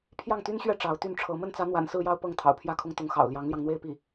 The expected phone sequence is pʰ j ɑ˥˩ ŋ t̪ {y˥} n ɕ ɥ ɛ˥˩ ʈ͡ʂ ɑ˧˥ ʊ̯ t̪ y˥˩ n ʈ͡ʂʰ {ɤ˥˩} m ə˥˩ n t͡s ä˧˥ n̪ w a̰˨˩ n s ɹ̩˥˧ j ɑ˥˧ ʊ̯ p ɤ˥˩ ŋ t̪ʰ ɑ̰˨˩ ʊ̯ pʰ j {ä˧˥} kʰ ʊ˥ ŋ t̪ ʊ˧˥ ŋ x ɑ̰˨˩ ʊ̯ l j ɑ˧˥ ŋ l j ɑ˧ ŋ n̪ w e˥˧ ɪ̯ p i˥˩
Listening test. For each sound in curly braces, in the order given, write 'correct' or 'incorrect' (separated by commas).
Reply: correct, incorrect, incorrect